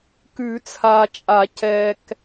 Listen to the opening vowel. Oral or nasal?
oral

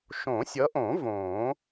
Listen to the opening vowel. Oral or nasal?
nasal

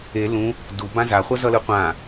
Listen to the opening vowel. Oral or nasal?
oral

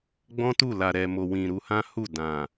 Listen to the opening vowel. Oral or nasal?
nasal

